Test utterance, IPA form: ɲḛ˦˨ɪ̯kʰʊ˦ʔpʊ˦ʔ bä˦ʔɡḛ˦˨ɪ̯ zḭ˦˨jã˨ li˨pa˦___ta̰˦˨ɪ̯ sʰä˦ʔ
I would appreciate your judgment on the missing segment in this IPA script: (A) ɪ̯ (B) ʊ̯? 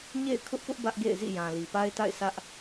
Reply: A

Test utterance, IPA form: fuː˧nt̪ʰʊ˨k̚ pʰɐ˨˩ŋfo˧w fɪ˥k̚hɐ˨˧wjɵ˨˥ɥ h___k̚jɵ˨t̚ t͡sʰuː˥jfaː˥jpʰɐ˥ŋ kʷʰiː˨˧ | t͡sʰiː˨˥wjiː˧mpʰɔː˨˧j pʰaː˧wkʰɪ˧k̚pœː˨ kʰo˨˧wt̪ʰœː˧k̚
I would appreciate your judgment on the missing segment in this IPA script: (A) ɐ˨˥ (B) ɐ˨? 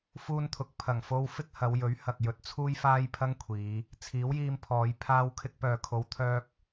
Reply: B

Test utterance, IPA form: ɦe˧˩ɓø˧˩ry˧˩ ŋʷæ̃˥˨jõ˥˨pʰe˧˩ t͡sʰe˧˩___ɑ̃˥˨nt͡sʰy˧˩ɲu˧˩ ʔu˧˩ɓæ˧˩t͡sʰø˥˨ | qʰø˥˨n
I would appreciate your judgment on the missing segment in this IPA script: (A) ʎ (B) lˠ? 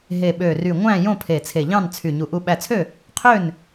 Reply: A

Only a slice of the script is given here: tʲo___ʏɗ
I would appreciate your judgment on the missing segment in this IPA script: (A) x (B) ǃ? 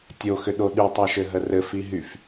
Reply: A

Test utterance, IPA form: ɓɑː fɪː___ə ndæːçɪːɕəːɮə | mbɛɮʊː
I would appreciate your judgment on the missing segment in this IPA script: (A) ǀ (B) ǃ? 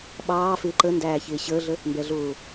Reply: B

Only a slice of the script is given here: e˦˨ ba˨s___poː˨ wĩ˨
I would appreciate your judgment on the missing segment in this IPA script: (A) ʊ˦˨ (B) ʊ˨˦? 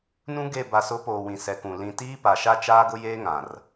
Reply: B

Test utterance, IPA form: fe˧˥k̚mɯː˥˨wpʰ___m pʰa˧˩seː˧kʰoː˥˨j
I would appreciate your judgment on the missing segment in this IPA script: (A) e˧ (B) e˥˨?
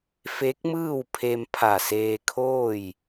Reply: A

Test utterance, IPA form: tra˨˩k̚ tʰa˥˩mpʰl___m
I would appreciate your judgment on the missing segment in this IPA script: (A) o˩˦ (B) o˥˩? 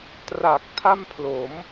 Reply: A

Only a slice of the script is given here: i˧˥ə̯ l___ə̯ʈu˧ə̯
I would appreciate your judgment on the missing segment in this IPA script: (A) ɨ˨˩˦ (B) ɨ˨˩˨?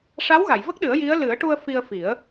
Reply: A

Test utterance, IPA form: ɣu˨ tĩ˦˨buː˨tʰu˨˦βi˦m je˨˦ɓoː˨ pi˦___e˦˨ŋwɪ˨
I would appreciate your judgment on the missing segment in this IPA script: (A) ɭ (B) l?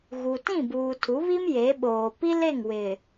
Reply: B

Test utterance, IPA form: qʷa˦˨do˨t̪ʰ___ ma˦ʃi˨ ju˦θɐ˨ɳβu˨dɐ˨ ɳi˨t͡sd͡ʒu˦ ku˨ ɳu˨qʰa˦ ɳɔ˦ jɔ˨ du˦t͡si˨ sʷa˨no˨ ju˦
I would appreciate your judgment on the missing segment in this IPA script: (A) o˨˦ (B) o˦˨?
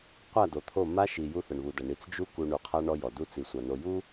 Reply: B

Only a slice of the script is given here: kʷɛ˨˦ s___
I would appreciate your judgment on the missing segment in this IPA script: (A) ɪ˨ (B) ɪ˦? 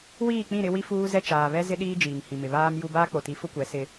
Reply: B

